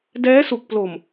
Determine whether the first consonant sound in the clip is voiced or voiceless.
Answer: voiced